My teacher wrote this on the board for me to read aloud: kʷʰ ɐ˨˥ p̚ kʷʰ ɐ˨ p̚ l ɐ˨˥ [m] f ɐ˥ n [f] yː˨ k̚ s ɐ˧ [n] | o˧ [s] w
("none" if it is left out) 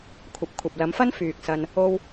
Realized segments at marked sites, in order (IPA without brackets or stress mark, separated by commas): m, f, n, none